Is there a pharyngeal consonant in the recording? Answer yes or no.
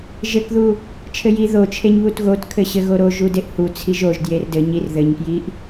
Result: no